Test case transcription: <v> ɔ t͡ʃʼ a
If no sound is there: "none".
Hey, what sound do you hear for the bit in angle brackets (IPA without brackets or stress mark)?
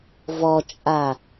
v